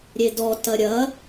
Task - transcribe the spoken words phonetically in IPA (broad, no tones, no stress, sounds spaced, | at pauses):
ɾʲ e d ɔ t ɐ ɾʲ ɐ